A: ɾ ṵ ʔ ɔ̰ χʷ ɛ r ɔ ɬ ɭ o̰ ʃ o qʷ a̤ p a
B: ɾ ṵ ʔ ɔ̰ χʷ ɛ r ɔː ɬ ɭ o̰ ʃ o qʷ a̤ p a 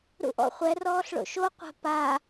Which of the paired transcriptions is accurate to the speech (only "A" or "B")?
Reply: B